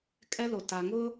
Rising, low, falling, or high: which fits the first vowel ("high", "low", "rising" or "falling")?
high